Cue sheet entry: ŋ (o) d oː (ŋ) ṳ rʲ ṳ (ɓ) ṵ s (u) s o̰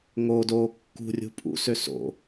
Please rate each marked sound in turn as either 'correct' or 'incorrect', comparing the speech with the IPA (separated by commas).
correct, incorrect, incorrect, incorrect